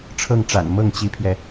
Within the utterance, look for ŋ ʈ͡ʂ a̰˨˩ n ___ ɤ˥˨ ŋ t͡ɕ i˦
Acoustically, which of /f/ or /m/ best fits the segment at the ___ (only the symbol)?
m